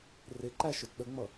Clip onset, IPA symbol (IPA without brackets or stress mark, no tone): r